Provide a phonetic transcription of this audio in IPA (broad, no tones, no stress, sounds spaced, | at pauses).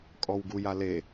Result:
kʼ ɔ w ɡ u j a l e